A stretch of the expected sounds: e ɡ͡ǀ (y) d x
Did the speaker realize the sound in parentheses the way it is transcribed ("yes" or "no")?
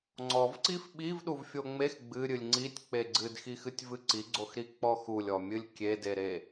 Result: no